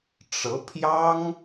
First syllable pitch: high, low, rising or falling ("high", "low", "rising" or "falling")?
rising